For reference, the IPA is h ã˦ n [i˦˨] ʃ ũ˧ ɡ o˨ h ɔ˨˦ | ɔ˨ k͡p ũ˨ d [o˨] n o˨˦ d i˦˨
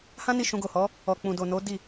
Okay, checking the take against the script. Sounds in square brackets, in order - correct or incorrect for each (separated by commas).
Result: correct, correct